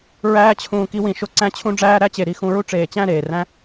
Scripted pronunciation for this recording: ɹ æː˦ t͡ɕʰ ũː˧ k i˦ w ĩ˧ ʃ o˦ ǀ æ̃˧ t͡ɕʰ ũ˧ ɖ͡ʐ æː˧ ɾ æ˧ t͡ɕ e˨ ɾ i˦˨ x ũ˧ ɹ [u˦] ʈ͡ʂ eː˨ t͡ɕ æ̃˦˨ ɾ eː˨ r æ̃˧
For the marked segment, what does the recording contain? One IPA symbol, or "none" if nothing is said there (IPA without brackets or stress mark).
u˦